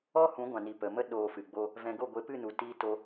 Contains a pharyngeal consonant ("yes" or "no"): no